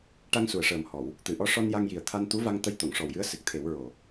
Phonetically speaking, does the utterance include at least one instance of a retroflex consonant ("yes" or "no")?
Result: yes